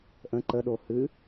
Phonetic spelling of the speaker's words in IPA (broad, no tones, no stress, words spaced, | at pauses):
ʔə̃ ǃəɗo hɨ